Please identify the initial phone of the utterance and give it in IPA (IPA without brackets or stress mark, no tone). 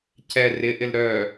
c